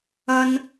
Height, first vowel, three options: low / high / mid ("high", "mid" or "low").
low